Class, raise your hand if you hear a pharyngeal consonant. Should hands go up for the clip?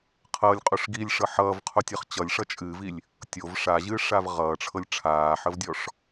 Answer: yes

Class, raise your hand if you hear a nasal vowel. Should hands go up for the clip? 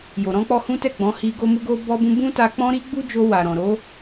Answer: yes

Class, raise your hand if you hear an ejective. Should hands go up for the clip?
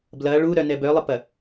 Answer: no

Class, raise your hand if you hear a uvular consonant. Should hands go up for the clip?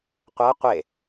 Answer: yes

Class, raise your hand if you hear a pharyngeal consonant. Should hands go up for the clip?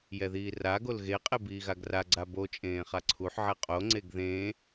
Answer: yes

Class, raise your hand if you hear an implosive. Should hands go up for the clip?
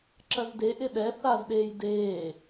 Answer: yes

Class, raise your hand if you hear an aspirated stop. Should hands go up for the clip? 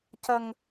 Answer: no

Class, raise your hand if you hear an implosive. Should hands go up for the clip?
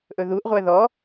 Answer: no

